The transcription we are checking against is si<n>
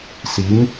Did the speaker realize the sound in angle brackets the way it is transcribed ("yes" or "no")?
no